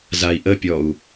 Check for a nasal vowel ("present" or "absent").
absent